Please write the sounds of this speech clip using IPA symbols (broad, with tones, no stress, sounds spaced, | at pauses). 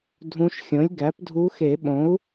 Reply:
dʱ ũ˧˥ ʃ xʲ õ˩˥ lʲ ɡ æ˩˥ p dʱ u˧˥ x e˨˩˦ ɓ õ˩˥ u̯